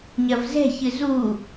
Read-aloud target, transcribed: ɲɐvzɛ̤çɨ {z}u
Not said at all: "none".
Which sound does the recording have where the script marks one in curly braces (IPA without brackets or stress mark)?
z